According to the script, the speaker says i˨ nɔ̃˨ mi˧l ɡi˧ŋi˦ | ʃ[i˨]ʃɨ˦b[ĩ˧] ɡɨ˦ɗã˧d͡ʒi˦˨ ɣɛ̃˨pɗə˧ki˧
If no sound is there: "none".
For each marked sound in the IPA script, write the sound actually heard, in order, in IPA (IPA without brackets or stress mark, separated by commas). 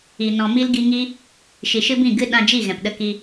i˨, ĩ˦˨